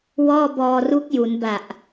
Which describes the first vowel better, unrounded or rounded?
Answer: rounded